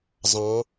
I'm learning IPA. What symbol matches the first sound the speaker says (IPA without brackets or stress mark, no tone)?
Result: zˤ